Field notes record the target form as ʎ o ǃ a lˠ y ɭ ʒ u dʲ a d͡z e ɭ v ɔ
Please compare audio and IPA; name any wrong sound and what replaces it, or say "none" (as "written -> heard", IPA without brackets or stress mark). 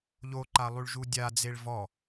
none